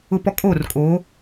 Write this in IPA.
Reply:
ʊ˨ p ɔ˨ kʼ oː˦˨ r kʼ o˨˦

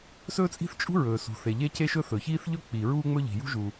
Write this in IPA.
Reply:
s ɵː˥ t͡sʼ i̤˥ θ t͡ʃʼ ṳ˥ ɹ ɵː˩ s ṳ˩ θ e˩ ʎ e˥ c e˥ ʃ ɵ˥ θ ɵ˩ ç iː˥ θ ʎ ɵ˥ k͡p i˩ ɹ uː˥ ŋ͡m ɵ˥ ʎ i̤˩ j ṳ˥ ʒ u˩

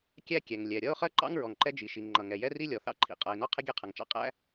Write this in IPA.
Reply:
kʲ æ˥ kʲ ɛ˩ ŋ lʲ ɛ˩ ɾʲ ʌ˥ ʊ̯ χ ɜ˥ ǃ ɑ̰˥ ŋ ɹ ɔ˩ ŋ ǃ ɛ˥ d͡ʒ i˩ ʃ i˩ ŋ ŋ͡ǃ ʌ˩ ŋ ɛ˩ j ɛ˥ r i˥ lʲ ɔ˩ θ ɑ̰˥ ǃʰ ḭ˩ qʼ ʌ˩ ɪ̯ n ɔ˥ qʰ ɪ˥ ɡʲ ɛ˥ qʰ ʌ˩ ŋ t͡ʃ ɑ̰˥ qʼ æ̰˥

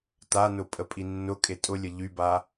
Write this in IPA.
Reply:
t a n ʊ pʼ ə pʼ i nː ʊ kʼ e tʼ ʊ lʲ ə ʎ y b a

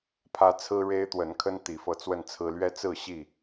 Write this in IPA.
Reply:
pʰ ä˦ t͡sʰ ɹ̩˦ ɻ e˦ ɪ̯ t̪ w ə˨˦ n kʰ ə˦ n t̪ i˨˦ f ɤ˧ t͡s w ə˥˨ n t͡sʰ ɹ̩˦ l ɥ ɛ˦ t͡s ɹ̩˥˨ ɕ i˥˨

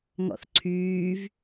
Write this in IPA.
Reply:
ŋ ɔ̰ θ ǀʰ yː v

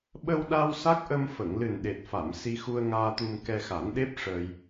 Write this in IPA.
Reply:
ɓ ə˧ w ɗ a˧ w s a˦˥ k̚ ʔ ə˧ m f ə˨˩˨ ŋ l ɨ˨˩ n ɗ e˨˩ t̚ f a˨˩˨ m s i˧ x u˧ ə̯ ŋ aː˧ t̪ u˧ m k ɛ˧ x a˨˩˦ n ɗ e˦˥ p̚ ʂ əː˧ j

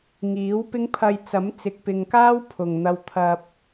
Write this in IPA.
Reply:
ŋ iː˨˥ w p ɪ˥ ŋ pʰ ɐ˧ j t͡s ɐ˨˥ m t͡s ɪ˨ k̚ p ɪ˨ ŋ k aː˥ w pʰ ʊ˨˩ ŋ n̪ ɐ˧ w t̪ʰ ɐ˨ p̚

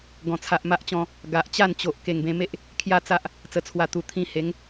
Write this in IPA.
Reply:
ɡ ɔ̃˨˩ t͡sʰ a˨ ʔ m a˦ ʔ t͡ɕ ɔ̃˧ | ɡ a˨ ʔ t͡ɕ a˥˧ n t͡ɕ o˨ ʔ k e˨˩ ŋ b ẽ˧ m e˦ ʔ | kʰ j a˦ t͡s a˦ ʔ | t͡s ə˨˩ t͡sʰ w a˨˩ t̪ u˨˩ t̪ʰ ĩ˧ h e˨˦ ŋ

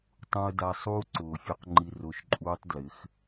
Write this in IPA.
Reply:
tˤ ũ˧ ə̯ d a˧ sˤ uː˦ ǀ ʊː˨ fʲ u˧ q ŋ͡ǃ i˧ r ʊː˧ ʃ ǃʼ uː˦ tˤ d l ɪ˨˦ x

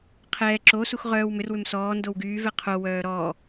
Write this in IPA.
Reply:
qʰ ɛː ǁ o s u x ʁ œː w m ʏ r w ʏ m s ɔː n d o w ɡ yː v ɛ qʰ o w œː ɾ ɔː

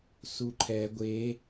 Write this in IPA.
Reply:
s u ǃʰ ɛ ɡʷ e

